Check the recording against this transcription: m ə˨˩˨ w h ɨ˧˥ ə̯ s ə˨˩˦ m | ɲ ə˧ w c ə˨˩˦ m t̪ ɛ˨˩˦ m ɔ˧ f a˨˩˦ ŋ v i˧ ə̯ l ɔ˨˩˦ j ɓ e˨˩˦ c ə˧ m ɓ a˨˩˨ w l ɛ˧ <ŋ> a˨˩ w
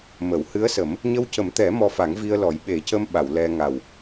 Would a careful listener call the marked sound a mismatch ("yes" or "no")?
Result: no